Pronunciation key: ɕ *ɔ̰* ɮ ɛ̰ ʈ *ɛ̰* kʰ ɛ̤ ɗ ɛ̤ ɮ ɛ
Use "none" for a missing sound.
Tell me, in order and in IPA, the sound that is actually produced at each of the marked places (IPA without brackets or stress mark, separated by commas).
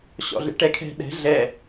ɔ̰, ɛ